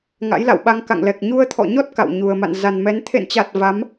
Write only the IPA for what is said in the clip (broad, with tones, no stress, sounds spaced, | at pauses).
ŋ a̰˧˥ j l a̰˧˨ w ɓ a˧ ŋ k a̰˧˨ ŋ l ɛ˨˩ k̚ ɲ u˧ ə̯ t̪ʰ ɔ̰˧˨ ɲ ɔ˦˥ t̚ k a̰˧˨ w ɲ u˨˩ ə̯ m a̰˧˨ n z a˨˩ n m ɛ˨˦ n t̪ʰ ḛ˧˨ n t͡ɕ a˨˩ t̚ v a˨˦ m